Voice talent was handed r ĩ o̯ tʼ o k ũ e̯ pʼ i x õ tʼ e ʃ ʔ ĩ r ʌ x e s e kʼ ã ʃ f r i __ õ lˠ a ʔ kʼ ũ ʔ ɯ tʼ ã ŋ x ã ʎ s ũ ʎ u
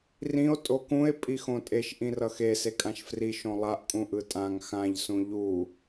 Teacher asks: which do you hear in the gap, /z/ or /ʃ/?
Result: ʃ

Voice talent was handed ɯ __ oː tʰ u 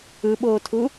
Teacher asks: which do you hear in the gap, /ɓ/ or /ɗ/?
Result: ɓ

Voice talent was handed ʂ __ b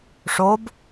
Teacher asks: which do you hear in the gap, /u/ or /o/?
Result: o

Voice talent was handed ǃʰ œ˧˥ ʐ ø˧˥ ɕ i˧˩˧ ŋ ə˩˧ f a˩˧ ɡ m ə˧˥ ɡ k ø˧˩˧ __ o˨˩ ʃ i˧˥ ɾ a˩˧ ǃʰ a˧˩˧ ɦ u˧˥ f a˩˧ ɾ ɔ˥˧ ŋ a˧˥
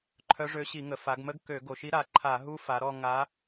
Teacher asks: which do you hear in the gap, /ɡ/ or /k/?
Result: ɡ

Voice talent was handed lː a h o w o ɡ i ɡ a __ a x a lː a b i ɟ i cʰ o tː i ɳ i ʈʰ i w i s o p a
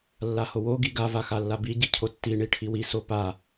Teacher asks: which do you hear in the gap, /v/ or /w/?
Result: v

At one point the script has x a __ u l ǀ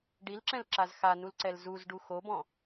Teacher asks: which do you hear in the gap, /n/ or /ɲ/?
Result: n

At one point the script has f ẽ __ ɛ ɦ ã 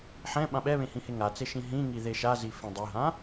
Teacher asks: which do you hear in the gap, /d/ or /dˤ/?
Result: dˤ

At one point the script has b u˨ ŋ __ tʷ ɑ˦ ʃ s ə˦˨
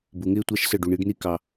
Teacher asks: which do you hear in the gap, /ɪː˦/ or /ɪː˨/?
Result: ɪː˦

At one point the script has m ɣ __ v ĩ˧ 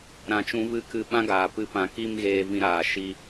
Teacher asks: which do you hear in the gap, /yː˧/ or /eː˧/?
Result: eː˧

